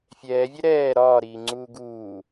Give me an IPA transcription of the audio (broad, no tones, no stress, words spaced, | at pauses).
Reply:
fʲɛːvʲɛ ɾɛː ɾɒːɾiːŋ͡ǀuː ɡuː